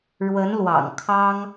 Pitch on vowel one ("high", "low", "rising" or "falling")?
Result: rising